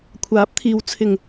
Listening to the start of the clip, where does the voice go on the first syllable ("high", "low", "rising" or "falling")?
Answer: rising